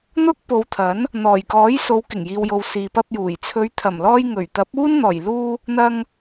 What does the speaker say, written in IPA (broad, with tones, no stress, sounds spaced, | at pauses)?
n̪ ʊ˥ k̚ p o˨˧ w t̪ʰ ɐ˨˥ n | n̪ ɔː˨˩ j k ɔː˨˥ j s o˨˧ w k ɪ˨˩ ŋ j iː˨ w j o˨ w s iː˨ p ɐ˧ p̚ j uː˨˩ j t͡sʰ ɵ˨˧ ɥ t̪ʰ ɐ˨˩ m l ɔː˧ j ŋ ɵ˨˩ ɥ t̪ ɐ˨˥ p̚ uː˥ n n̪ ɔː˨˩ j l uː˧ | n̪ ɐ˧ ŋ